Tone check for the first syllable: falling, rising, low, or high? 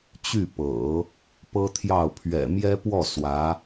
falling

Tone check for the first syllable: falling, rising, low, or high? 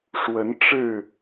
rising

